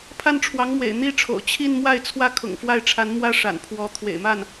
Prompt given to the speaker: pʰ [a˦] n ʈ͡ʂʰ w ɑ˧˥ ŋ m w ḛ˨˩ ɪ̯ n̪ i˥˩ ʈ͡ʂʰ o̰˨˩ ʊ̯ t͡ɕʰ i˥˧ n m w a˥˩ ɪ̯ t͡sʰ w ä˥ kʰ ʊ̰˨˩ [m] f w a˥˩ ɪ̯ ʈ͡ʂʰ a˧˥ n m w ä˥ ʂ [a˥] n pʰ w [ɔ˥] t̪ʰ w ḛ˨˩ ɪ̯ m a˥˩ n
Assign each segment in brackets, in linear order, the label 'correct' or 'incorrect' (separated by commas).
incorrect, incorrect, incorrect, incorrect